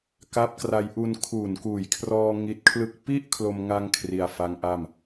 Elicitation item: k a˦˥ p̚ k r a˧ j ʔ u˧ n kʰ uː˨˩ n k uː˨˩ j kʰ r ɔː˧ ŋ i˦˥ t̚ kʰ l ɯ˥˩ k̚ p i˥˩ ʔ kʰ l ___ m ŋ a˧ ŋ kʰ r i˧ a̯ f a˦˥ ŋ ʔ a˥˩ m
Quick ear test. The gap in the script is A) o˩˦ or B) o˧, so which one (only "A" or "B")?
B